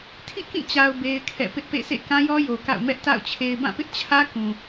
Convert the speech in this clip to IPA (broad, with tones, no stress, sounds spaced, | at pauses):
tʰ ḭ˦˨ k ĩ˦˨ t͡ɕ a˨ ʊ̯ b e˦ ɪ̯ kʰ ɛ̰˦˨ p ɪ˦ ʔ p ḛ˦˨ s ḛ˦˨ k ã˦ j ɔ˦ j o˨ k a̰˦˨ ʊ̯ m ɛ˦ ʔ t a̰˦˨ ʊ̯ t͡ɕʰ e˨ ɪ̯ b ã˦˨ p ɪ˦ ʔ t͡ɕʰ ä˦ k ũ˨